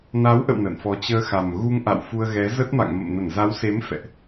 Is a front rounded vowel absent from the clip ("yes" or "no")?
yes